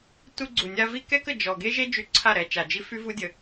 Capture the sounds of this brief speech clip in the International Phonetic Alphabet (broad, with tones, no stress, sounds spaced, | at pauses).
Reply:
t u˧ ɡ͡ǀ u˨ nʲ a˧ v i˦ k ɛ˦ k ə˨ d͡ʒ ɔ˨ ɡ e˦ ʒ e˦ d͡ʒ y˧ ǀʰ a˦˨ ɾ ɛ˧ t͡ʃ a˨ d͡ʒ i˦ f y˦ v u˦ dʲ ə˧